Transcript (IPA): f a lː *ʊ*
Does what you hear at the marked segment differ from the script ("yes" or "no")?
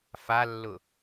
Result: no